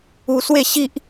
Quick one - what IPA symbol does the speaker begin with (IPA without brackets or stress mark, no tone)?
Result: u